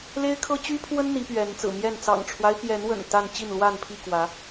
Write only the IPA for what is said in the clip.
l e˦ ɪ̯ kʰ ɤ˦ t͡ɕ y˦ pʰ w ə˦ n n̪ i˨˦ p ɥ ɛ˨˦ n t͡s ɹ̩˨˩ m j ɛ˥˨ n t͡s ɑ̰˨˩ ŋ ʈ͡ʂʰ w a˦ ɪ̯ p j ɛ˨˦ n w ə̰˨˩ n t̪ a˥˨ n t͡ɕ i˥˨ n l w a˥˨ n pʰ i˥˨ k w ä˨˦

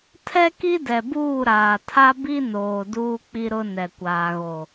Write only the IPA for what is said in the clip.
tʰ ɛ˦ k i˦ d ɛ˨ b uː˦˨ ɾ aː˨ tʰ a˦ b i˦ n oː˨ d uː˦ k͡p i˦ ɾ ʊ˦ n ɛ˨ kʷ aː˨ ɣ o˨

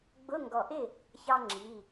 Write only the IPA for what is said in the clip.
ɡ͡b ʊ˧˥˧ ŋ ɡ ɔ˧˩ ʔ ɪ˥˨ | ç ɑ˥ ŋ͡ǁ i˧˥˧

